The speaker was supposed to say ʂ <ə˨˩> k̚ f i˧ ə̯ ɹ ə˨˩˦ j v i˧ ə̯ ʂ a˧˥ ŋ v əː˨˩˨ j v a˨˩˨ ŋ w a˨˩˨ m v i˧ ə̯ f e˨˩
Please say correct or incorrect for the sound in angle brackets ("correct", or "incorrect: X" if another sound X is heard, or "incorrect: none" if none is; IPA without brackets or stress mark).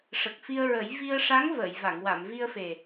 correct